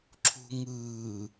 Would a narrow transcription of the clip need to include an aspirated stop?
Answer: yes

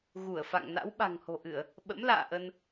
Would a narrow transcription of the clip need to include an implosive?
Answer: yes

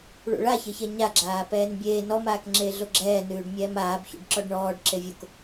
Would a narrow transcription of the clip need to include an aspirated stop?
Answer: no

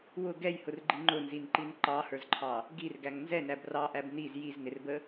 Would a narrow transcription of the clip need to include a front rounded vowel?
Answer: no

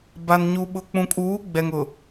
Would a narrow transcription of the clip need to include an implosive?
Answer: yes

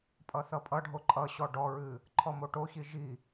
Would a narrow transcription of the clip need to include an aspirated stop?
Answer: yes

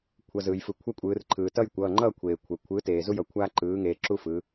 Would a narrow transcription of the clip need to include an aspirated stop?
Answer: yes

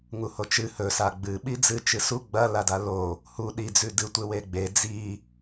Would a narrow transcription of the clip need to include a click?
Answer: no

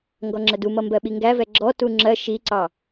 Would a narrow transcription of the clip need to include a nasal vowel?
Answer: no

